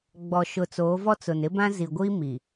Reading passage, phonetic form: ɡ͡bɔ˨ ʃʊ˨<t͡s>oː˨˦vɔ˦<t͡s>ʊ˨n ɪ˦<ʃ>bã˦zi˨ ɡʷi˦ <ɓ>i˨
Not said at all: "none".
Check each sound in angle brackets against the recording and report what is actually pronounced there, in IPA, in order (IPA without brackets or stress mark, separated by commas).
t͡s, t͡s, none, m